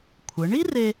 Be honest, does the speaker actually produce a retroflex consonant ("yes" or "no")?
yes